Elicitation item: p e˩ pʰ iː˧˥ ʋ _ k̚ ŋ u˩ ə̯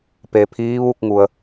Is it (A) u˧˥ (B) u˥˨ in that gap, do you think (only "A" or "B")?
B